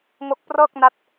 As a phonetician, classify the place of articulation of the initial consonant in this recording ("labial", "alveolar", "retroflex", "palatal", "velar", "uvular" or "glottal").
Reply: velar